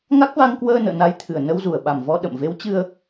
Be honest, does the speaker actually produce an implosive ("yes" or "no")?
yes